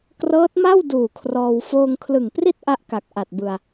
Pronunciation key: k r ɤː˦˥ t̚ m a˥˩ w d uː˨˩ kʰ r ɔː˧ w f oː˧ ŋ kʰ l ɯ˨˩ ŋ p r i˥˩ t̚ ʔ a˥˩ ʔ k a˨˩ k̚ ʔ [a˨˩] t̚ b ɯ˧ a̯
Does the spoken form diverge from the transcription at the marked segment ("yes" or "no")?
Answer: no